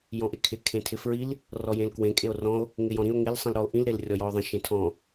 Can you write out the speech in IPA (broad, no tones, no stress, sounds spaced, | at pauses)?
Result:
j ɔ̃ ʔ e kʰ ɪ kʰ ẽ tʰ ɪ f ɹ i l | r ɔ j ẽ l k w ẽ kʼ e o̯ r ɔ̃ o̯ | ŋ ɪ j ɔ̃ ɾ ĩ o̯ ŋ ɪ l sˤ ĩ l ɾ ɔ o̯ ʔ ĩ l ɾ e l rʲ ɔ j ɔ o̯ ðˤ ĩ ʃ ẽ tʰ ɔ̃